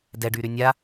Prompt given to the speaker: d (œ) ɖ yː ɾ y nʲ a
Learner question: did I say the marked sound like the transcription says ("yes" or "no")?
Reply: no